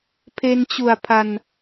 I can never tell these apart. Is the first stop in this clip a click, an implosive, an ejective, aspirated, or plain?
aspirated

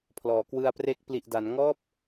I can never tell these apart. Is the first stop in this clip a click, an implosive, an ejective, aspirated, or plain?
aspirated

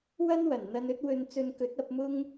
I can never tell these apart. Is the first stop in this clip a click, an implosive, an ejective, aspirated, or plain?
plain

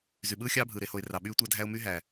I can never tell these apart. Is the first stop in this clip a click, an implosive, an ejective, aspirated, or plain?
implosive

